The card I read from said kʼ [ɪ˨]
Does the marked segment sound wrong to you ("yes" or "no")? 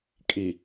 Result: yes